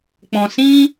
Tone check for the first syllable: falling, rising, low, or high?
low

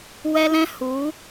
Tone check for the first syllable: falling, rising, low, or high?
high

